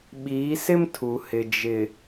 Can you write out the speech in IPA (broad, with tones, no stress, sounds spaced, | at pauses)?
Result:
ɓ iː˨˦ s ɪ˦ m tʰ u˨ h ɪ˨ d͡ʒ ɪ˨